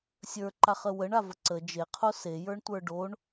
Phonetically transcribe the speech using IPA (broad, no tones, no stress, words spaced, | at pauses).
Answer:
sʲə˞ǃaχə wəɳavə ǀə d͡ʒeqʰo sejə˞ɳtʷə˞ ɖoɳ